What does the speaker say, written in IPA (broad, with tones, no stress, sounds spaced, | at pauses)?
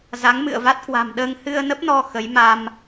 z a˨˦ ŋ m ɨ̰˧˨ ə̯ v a˦˥ t̚ k w a̤˨˩ m ɗ əː˧ ŋ h ɨ˧ ə̯ n ə˦˥ p̚ n ɔ˧ x ə˨˦ j m a˧ m